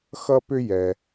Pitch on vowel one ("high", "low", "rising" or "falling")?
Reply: high